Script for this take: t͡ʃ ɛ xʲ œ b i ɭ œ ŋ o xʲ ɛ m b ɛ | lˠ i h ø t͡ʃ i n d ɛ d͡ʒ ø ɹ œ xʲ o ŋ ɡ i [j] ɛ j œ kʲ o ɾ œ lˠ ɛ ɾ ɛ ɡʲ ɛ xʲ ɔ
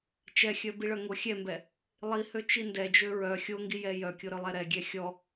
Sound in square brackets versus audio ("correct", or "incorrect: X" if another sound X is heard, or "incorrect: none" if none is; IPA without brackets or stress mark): correct